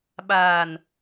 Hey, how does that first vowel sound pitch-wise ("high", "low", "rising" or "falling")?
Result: low